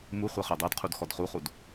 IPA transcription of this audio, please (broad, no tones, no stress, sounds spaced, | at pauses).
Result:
m u χʷ ɜ χ ɜ dˤ ɜ d qʰ u d x ɔ d χ u χ u d